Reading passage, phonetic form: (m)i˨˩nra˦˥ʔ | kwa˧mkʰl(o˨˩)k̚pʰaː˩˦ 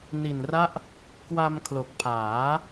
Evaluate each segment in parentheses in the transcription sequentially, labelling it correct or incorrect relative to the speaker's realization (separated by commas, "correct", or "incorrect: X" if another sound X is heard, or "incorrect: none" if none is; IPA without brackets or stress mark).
incorrect: n, correct